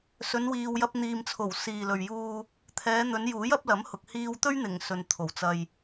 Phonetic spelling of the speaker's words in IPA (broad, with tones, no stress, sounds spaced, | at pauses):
s ɵ˨˧ n w iː˨ w j ɐ˧ p̚ n̪ iː˨ m t͡sʰ o˨˩ w s iː˨ l ɵ˨ ɥ j uː˧ | t̪ʰ ɛː˨˧ n̪ ɵ˨˧ n j uː˨˥ j ɐ˨˥ p̚ l ɐ˨˥ m h ʊ˨ k̚ h iː˧ w t̪ ɵ˥ ɥ n̪ ɪ˨˩ ŋ s ɵ˨ n t̪ʰ o˨˩ w t͡s ɐ˨ j